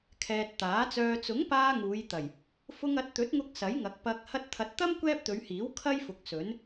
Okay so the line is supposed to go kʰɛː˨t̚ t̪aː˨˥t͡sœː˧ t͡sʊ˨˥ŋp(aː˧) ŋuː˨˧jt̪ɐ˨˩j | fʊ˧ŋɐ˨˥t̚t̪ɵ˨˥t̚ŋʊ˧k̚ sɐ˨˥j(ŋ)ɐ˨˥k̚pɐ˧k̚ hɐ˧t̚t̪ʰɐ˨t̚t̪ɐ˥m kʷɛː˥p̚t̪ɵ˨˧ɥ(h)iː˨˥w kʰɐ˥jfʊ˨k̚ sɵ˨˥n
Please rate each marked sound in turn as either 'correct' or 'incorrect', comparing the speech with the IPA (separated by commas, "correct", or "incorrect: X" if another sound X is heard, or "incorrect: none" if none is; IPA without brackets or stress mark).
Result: correct, correct, correct